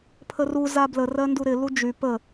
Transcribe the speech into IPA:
pʰ ə r u z a b l ə r ɜ n d u ɾ ɪ l u d͡ʒ y p ə

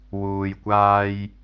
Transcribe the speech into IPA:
w uː˨ j kʷ aː˧ j

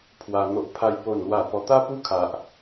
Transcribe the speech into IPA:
pʰ w a˧ n̪ o˦ ʔ pʰ a˦ j p o˥˧ n l w a˥˧ p ɔ˧ t̪ a˦ p u˦ kʰ a˦ ʔ

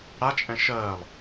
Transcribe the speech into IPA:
ɽ a t͡ʃʼ ɛ̃ ʃ ɜː lˠ

